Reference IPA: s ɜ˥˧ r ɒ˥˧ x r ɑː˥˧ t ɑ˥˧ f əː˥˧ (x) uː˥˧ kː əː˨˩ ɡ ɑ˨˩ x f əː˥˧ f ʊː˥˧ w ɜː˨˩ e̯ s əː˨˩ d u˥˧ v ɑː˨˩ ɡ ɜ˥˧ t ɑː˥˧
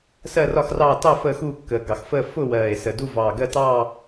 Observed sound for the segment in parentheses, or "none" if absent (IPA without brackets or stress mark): x